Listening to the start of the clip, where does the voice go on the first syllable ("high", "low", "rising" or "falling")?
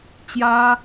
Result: high